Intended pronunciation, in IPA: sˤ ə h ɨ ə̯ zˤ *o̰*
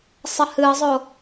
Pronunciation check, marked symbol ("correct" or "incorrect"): incorrect